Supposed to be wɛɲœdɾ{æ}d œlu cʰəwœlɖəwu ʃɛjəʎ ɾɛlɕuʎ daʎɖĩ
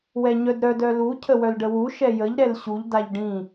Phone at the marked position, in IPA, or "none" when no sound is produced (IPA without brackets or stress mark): œ